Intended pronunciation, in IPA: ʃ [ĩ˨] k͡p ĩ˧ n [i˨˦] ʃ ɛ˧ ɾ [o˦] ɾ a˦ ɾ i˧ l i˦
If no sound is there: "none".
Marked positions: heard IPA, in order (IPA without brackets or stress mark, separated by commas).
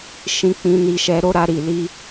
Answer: ĩ˧, i˧, o˦